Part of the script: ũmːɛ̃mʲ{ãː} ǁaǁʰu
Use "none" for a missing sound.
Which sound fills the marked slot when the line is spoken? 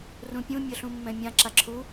ã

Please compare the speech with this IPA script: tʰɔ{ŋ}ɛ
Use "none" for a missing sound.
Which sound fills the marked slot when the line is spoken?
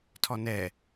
n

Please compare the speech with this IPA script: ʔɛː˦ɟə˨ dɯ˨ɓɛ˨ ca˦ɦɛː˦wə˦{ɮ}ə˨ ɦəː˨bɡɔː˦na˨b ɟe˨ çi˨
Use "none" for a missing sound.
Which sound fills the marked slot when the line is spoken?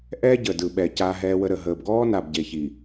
ɾ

